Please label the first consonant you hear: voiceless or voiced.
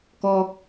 voiceless